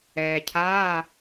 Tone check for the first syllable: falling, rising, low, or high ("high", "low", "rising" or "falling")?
low